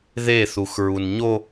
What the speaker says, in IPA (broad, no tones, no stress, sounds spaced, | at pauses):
ð e θ u x ɹ u n ɲ o